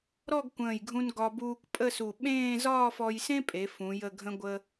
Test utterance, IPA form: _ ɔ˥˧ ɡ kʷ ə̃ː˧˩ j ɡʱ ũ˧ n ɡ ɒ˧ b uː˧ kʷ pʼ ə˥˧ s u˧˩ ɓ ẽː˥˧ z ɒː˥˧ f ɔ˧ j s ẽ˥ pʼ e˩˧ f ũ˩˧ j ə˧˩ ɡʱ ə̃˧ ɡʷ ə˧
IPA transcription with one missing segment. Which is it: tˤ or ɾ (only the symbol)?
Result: ɾ